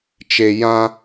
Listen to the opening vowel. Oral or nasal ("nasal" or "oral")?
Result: oral